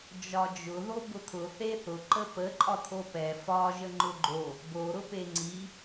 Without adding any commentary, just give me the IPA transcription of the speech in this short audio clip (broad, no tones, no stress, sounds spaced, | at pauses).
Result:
d͡ʒ ɒ d͡ʒ ʊ ð o b ʊ t̪ʰ ʊ θ e θ ʊ ǃ ə p ə ǃʼ ɒ t̪ʰ o p ɛ f ɒ ʒ ə ŋ͡ǃ ʊ ɡ͡ǃ o | b o ɾ ʊ p e ŋ͡ǀ i